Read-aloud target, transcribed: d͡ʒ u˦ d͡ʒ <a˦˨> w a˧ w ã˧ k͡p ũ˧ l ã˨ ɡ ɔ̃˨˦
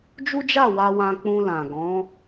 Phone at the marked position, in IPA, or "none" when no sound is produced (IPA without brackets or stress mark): a˦˨